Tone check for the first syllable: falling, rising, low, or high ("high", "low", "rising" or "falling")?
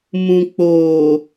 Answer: low